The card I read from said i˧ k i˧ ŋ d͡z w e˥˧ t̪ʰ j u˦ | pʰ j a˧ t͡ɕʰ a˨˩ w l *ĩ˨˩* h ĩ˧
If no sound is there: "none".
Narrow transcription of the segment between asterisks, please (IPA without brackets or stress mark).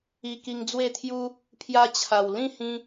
ĩ˥˧